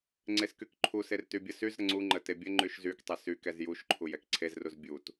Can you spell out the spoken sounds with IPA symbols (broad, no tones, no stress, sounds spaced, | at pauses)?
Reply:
ŋ͡ǀ e s k y k ǃʰ u s e r t y bʲ ə s y z ɾ ə ŋ͡ǀ u ŋ͡ǃ ə t e bʲ ə ŋ͡ǃ y ʃ z y k tˤ ɛ s y k ɛ z j u ʃ ǃʰ u j ɛ k ǀʰ e z r u z bʲ u t